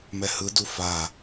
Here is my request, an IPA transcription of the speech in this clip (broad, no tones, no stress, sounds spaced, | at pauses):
m ɛ h ɯ d u f a